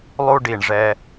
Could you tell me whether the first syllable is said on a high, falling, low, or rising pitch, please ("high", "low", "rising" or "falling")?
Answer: high